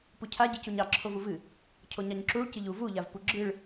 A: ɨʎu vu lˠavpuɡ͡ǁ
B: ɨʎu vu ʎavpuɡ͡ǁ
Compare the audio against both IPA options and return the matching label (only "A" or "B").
B